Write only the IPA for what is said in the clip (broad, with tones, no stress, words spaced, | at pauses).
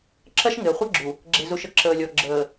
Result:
ǁɐ˦ʃŋɪ˨ə̯χʷɐ˦ɡ͡ǁu˨ | ɡ͡ǁe˨zu˨ʃ ə˨ ǁəː˨lʲɔ˨ɡ͡ǁəː˨